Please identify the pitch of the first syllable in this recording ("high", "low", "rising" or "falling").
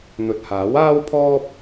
low